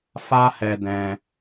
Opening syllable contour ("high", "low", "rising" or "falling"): high